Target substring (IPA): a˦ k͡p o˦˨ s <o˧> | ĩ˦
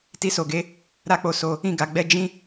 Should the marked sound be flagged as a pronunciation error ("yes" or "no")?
no